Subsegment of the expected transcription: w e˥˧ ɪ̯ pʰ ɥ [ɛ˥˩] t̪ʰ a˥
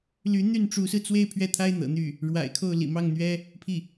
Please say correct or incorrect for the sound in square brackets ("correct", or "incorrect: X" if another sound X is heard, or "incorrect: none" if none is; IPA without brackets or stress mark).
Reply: correct